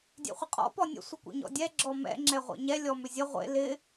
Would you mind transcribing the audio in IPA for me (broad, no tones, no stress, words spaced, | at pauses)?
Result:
dʲɛ̰χʷəqʼɔ̰ pɔnʲə̰ sʷɪkʷḭɲɔ̰dʲɛ ɡ͡ǁɔmɛ̰ ŋ͡ǁɛʁʷḛɲɛ lʲɔmʏzʲə ʁʷḛ lɪ